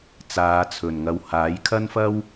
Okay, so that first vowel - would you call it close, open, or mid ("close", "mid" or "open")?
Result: open